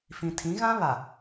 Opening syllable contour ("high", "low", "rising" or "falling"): low